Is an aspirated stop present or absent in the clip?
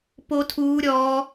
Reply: present